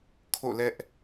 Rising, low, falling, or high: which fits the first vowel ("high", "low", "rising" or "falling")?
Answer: falling